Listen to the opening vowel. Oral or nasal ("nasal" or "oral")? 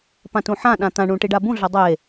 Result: nasal